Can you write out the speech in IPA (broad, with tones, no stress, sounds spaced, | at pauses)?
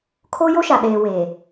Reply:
kʰ oː˦ j o˦ ʃ a˨ ɗ eː˨ w e˨